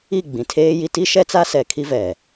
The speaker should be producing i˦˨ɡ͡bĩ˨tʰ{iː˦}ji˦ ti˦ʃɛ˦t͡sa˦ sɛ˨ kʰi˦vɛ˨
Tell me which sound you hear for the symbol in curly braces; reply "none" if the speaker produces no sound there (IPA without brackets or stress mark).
eː˦